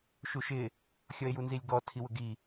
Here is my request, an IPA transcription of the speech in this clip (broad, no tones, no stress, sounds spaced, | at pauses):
ʃ u ʃ ɪ | xʲ ɔ e̯ j u n z i lʲ ɡ ɔ tʰ i w ʊ ɡ i